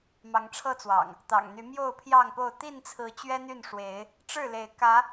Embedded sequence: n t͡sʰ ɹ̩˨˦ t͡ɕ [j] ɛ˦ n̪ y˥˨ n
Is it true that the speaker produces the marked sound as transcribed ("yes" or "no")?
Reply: no